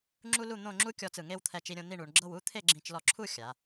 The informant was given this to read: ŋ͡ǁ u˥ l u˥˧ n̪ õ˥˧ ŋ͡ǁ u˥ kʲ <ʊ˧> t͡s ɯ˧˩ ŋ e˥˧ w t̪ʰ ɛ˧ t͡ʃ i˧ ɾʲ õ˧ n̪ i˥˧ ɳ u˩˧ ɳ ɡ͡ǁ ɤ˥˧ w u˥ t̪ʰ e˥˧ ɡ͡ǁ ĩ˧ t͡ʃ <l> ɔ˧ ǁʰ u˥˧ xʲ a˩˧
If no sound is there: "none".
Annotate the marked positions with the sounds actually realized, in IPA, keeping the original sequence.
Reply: ɔ˧, l

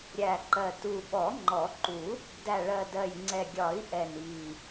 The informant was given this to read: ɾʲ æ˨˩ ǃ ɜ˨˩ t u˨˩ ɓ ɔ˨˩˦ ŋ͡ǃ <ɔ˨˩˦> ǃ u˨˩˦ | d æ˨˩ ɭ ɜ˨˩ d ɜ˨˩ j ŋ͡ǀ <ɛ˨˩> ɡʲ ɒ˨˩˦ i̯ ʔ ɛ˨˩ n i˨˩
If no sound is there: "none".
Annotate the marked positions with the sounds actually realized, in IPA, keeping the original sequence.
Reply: ɔ˨˩˦, ɛ˨˩

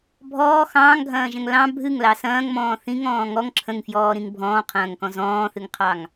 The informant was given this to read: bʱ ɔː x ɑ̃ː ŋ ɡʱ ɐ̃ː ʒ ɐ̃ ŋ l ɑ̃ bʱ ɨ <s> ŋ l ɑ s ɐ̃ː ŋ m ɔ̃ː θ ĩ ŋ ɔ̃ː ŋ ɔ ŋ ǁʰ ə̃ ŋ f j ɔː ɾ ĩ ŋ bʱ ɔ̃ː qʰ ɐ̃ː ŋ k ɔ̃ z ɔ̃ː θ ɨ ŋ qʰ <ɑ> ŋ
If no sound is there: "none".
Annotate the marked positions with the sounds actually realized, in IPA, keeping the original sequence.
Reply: none, ɑ

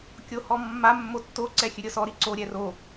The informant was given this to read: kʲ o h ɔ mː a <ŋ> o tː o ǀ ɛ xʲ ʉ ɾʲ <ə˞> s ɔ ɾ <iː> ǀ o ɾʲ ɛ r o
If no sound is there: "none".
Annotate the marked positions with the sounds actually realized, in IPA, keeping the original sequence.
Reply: mː, ɤ, i

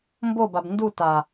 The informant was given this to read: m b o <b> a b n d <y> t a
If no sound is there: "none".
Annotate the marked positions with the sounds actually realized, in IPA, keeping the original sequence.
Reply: b, u

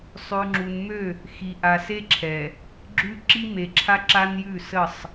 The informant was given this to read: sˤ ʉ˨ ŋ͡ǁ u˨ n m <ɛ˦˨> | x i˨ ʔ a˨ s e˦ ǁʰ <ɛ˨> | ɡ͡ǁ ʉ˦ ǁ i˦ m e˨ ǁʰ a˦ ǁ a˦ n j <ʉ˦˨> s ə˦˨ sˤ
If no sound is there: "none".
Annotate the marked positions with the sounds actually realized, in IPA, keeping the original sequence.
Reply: ø˦˨, ɛ˨, ʉ˦˨

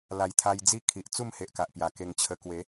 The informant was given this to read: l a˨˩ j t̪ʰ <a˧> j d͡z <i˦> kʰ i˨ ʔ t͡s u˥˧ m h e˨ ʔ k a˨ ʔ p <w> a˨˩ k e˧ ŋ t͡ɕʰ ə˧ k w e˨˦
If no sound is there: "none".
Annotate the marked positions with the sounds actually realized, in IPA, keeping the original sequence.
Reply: a˧, i˦, j

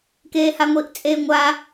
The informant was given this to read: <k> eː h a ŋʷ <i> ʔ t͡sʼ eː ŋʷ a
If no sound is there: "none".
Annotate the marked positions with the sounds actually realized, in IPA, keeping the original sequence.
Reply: k, i

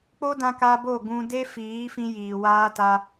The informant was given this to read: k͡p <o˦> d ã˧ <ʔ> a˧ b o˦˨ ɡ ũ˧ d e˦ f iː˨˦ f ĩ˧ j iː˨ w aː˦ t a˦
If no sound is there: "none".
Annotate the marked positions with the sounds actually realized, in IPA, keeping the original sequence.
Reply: o˦, k

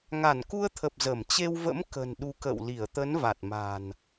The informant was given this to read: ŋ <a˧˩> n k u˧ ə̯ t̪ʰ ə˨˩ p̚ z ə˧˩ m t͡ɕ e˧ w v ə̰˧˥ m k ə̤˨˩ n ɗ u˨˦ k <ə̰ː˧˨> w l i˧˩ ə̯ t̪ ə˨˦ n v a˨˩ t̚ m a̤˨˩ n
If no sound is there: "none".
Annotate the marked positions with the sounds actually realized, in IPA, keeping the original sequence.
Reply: a˧˩, ə̰ː˧˨

